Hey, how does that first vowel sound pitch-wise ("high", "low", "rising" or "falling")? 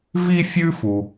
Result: high